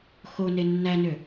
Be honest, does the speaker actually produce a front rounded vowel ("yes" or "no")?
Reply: yes